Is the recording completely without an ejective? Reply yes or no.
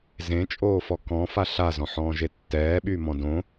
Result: no